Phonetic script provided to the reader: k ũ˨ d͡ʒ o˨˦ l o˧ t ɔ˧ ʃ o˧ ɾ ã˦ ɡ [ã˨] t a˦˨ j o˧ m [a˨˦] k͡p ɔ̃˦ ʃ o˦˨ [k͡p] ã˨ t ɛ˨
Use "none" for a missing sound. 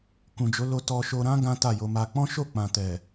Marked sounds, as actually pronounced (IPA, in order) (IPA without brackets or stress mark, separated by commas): ã˦, a˧, k͡p